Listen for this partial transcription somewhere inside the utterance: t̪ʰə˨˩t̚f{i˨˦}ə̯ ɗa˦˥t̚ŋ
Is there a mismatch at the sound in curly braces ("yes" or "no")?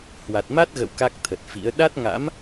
yes